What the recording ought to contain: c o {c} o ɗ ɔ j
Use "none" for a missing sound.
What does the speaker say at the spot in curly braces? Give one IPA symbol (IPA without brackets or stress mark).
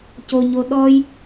ɲ